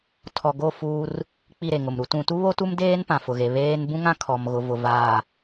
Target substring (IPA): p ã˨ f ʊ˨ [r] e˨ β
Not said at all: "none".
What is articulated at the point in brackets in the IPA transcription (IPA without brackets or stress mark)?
ɣ